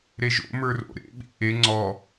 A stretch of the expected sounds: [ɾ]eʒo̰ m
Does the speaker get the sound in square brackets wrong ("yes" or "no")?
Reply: no